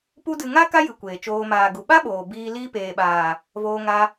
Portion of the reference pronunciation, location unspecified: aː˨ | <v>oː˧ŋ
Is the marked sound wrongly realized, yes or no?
no